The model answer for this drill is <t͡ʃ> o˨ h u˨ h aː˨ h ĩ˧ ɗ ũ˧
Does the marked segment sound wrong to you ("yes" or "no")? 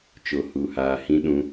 no